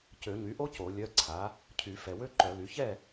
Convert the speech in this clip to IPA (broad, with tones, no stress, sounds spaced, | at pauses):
c ø˨˩˦ ɲ y˩˥ ʔ o˥ c o˨˩˦ lʲ œ˧˥˧ ǀʰ a˩˥ | cʰ y˨˩˦ f ɛ˨ w ø˥ ǃ œ˨˩˦ l y˩˥ ç ɛ˥˨